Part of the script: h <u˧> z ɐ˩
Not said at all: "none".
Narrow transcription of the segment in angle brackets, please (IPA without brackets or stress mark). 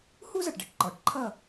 u˥